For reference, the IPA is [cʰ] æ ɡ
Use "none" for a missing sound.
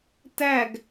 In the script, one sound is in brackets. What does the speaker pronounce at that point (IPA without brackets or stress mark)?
t